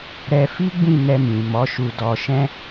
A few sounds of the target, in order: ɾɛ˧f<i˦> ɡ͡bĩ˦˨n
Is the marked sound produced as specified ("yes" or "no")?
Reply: yes